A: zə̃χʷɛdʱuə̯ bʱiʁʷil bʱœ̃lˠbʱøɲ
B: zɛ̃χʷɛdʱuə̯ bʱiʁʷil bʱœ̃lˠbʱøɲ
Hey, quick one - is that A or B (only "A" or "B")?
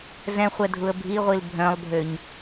B